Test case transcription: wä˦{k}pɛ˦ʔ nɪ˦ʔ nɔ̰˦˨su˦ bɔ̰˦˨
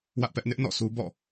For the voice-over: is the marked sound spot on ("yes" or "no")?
no